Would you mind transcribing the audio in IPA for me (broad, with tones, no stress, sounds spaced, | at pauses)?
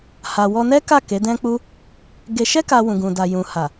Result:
h a˨ w ɔ˧ n ɛ˦ k a˦˨ k e˨˦ d ɛ̃˦ k͡p u˦ | ɡ e˧ ʃ ɛ˦ k a˧ w ũ˨ ɡ ũ˨ d a˨ j ũ˨ h a˨